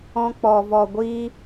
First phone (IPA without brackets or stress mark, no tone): ɔ̃